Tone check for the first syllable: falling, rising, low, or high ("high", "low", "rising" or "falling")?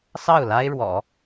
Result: falling